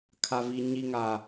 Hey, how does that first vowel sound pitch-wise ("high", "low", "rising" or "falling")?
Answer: low